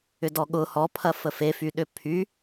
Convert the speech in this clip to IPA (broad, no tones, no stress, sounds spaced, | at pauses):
ʏ d ɔ ɠ ʊ h ɔ pʰ ɐ f ə f e f y ɗ ʏ pʰ y